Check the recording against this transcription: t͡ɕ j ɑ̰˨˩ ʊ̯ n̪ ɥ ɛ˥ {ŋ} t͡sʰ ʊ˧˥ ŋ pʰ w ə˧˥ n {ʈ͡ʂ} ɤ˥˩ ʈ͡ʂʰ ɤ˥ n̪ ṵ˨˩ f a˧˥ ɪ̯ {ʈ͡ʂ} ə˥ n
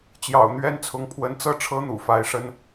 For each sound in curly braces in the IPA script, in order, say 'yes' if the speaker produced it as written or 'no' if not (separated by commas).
no, no, no